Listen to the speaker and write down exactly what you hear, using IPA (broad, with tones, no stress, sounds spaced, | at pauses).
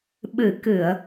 ɓ ɨ˨˩˦ k ɨ˨˩˨ ə̯